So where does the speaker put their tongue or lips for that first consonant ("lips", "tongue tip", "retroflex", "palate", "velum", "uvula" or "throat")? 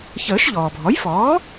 palate